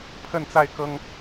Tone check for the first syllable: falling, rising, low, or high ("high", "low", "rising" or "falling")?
falling